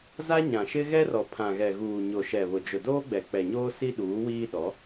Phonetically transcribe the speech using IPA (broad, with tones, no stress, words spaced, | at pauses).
za˦ ɲã˨ʃɪ˦ɣɛ˦rɔ˨ pʰã˨ɣɛ˨ɣuː˨ ɲo˨ʃɛ˨βʊ˨ d͡ʒʊ˨doː˦ɡ͡bɛ˨ k͡pɛ˨ɲoː˦ si˦ɗuː˨˦wiː˦ ɗɔ˨˦